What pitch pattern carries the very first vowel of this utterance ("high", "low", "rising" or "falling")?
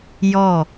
falling